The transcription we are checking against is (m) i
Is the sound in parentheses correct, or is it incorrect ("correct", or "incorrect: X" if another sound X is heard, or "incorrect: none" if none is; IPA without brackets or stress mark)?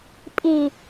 incorrect: pʼ